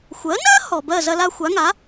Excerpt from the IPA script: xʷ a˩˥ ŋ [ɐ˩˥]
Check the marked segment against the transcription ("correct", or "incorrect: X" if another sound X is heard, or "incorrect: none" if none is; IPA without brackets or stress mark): incorrect: a˩˥